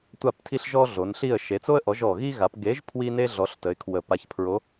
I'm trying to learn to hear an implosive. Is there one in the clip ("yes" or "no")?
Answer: no